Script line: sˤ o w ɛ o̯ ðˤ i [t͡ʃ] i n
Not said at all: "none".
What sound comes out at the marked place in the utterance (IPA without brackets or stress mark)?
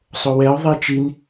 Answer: t͡ʃ